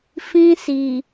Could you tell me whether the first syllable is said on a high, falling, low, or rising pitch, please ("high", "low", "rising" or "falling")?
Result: high